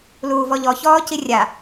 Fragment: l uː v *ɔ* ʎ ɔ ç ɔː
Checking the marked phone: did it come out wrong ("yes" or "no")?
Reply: no